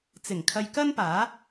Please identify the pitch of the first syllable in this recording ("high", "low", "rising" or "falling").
low